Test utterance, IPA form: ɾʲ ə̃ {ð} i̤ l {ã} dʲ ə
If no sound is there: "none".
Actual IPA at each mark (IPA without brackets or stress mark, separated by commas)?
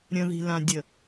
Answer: ð, ã